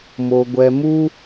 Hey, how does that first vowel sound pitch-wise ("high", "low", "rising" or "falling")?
low